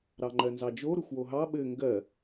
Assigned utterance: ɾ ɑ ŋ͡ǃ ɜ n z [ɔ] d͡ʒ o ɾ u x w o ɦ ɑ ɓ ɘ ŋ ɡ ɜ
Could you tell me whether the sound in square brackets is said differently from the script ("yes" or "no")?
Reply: yes